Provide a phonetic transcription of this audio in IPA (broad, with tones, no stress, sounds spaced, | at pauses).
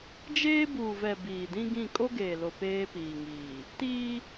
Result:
d͡ʒ eː˦ b uː˨ v ɛ˨ b iː˨ d ĩ˦ ɡ ĩ˦˨ kʼ o˦ ɡ eː˨ l o˨ p eː˦ p iː˨ ŋ iː˨ | t iː˦